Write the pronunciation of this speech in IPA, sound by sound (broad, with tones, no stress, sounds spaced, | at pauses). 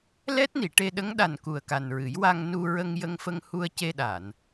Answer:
l ɛ˦˥ t̚ n i˨˩˨ ʈ e˧ ɗ ə˧˥ ŋ ɗ a˨˩ n k u˨˩ ə̯ k a˨˩ n ɹ ɨ˨˩˦ j w a˧ ŋ n u˧ ɹ ə˧ ŋ j ə˧ ŋ f ə˧ ŋ h u˧ ə̯ c e˧ ɗ a˨˩˨ n